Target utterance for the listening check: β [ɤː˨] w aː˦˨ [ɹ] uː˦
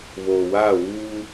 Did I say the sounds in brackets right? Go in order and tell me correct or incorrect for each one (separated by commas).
incorrect, incorrect